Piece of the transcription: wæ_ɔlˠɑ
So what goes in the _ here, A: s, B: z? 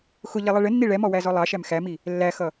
B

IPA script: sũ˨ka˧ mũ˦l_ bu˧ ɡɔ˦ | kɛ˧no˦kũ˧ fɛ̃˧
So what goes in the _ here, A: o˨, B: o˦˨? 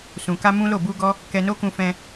B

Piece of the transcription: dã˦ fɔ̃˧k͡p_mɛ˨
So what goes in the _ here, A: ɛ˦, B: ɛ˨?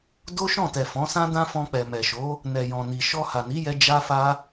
B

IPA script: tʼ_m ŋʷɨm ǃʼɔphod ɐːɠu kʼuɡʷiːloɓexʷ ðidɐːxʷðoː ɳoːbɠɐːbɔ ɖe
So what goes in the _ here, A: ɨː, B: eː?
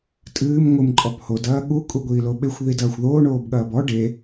A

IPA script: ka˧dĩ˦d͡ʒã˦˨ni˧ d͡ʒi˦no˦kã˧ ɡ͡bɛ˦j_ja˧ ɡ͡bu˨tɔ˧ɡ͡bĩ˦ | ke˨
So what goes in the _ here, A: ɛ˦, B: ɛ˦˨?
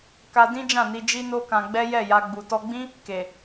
B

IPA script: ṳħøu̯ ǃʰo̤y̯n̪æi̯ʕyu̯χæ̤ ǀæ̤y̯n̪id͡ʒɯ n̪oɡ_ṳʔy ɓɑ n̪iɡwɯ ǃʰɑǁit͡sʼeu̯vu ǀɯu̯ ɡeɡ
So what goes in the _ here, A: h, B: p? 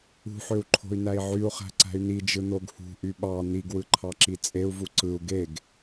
A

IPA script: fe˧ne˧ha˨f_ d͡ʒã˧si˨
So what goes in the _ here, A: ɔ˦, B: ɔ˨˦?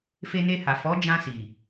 B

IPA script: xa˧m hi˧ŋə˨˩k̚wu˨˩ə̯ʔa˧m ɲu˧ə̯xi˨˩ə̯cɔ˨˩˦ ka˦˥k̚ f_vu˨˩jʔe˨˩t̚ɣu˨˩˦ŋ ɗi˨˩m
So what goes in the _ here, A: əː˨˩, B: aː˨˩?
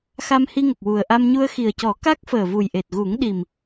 A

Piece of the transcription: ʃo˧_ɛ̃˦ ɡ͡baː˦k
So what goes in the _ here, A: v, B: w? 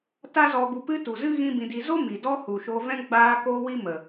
A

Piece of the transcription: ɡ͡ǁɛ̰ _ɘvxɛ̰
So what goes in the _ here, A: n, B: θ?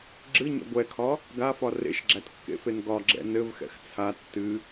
A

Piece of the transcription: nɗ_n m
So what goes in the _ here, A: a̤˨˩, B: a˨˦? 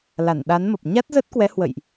B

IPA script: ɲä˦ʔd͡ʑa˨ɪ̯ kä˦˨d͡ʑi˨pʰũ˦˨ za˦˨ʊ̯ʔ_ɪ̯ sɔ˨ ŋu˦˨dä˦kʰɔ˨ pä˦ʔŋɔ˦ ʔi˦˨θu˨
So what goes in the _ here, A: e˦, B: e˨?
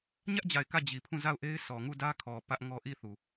A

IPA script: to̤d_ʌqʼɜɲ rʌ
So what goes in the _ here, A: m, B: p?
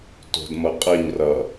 A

